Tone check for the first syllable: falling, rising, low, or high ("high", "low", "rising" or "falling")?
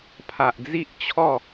low